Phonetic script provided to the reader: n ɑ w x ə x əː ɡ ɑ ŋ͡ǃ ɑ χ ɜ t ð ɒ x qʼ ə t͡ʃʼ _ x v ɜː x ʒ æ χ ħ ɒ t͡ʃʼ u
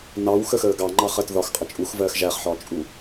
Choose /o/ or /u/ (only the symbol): u